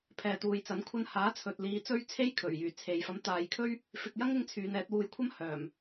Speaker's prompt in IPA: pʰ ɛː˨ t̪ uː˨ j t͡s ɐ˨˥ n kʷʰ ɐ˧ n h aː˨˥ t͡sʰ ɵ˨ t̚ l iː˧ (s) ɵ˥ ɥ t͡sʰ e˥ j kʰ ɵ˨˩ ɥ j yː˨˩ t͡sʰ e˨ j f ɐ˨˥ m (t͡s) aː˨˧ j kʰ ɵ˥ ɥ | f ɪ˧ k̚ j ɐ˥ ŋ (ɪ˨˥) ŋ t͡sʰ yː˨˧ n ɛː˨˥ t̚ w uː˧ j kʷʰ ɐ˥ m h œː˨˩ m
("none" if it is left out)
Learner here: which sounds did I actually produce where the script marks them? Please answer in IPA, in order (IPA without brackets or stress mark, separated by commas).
t͡s, t̪, ɪ˧